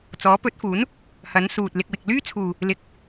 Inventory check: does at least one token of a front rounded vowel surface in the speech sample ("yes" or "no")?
yes